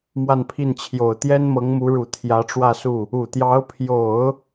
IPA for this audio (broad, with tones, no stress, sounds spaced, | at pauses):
m w a˥˧ n pʰ i˥˩ n t͡ɕʰ j o˨˩ ʊ̯ t̪ j ɛ˥ n m ɤ˧˥ ŋ m u˧˥ ɻ u˨˩ t̪ʰ j ä˧˥ ʈ͡ʂ w ä˥˧ s u˥˩ | u˨˩ t̪ j ɑ˧˥ ʊ̯ pʰ j o˨˩˦ ʊ̯